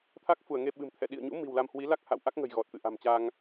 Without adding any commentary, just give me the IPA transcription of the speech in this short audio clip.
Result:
t̪ʰ a˦˥ k̚ f u˧˩ ə̯ ŋ e˧ ɓ ɨ̤˨˩ m t̪ʰ ɛ̰˧˨ ɗ ḭ˧˨ ə̯ ɲ ṵ˧˥ m i̤˨˩ w l a˧ m h w i˨˦ l a˦˥ k̚ h a̰˧˨ w ʔ a˦˥ k̚ ŋ ə̤˨˩ j ɣ ɔ˨˩ t̚ t̪ ɨ̰˧˨ ʔ a̤˨˩ m t͡ɕ a˧ ŋ

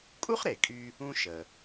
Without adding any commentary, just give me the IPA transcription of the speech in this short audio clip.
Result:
kʼ u˥ χ ɾ e˩ kʼ y˥ | ũ˥ ʃ ə˩

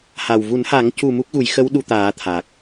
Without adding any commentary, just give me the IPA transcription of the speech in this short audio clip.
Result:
h a˨˩ w v u˨˩˦ n h a˨˩˦ ŋ c u˨˩ m u˦˥ k̚ ɣ u˨˩˦ j x ə˧˥ w ɗ u˧ t̪ aː˨˩˦ t̪ʰ a˨˩ k̚

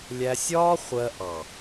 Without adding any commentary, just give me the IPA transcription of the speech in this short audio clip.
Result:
lʲ æ˧ sʲ ɒː˦ χʷ ɜ˧ ʔ ɑ˨

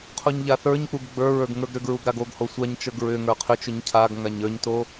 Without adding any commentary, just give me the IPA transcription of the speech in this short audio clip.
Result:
qʰ u ɲ ʎ a θ ə˞ ɲ k͡p u ɡ ɡ͡b ə˞ ɹ ə˞ ɡ ŋ ə˞ ɡ ɾ ʏ ɡ ɹ u ɡ ɾ a ɡ o ɡ h o sʷ a ɲ t͡ʃ ə˞ ɡ ɹ ʏ ŋ ə˞ qʰ ʏ t͡ʃ ʏ ɲ cʰ a ɡ ŋ a ɲ ə˞ ɲ t o

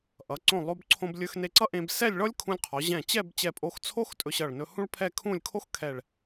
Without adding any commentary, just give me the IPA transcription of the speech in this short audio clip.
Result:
ʔ ʌ˩˧ ǀ õ˧˩ lˠ o˧ b ǀʰ õ˧ b lʲ ɵ˧ x n e˧ ǀ ʌ˥ ʔ ẽ˧ b s ɛ˥˧ lʲ ɭ ɔ˥ lʲ kʰ ũ˧ lʲ qʰ ɔ˩˧ ʑ ɛ̃˧˩ t͡ɕ ɛ˥˧ b t͡ɕ ɛ˧˩ pʼ o˧ x t͡sʰ o˥ x tʼ ɵ˧ ɕ ʌ˧˩ ɭ n ɵ˧ h ũ˥ ɭ pʰ ɛ˥˧ kʰ ũ˥˧ lʲ kʰ o˥ x kʰ ɛ˧˩ ɭ

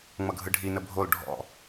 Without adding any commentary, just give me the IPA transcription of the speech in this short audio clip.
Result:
ŋ͡m ʌ ɡʱ ɯ ɖʱ i n ə bʱ o l ɖʱ ɔ̰

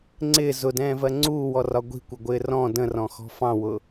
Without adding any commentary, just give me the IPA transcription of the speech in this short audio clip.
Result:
ŋ͡ǀ ɪː z ʊ d ɛ̃ː v ɜ ŋ͡ǀ uː w ɔ r ɒ ɡʷ i̤ kʷ ə ɡʷ ɪː r ɔ̃ d ə̃ r ɔ̃ x ɔ̤ f ɑ̃ w ʊ

